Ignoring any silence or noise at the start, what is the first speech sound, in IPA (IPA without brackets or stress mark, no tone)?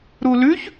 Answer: ɾ